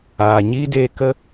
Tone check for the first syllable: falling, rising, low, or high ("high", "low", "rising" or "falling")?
low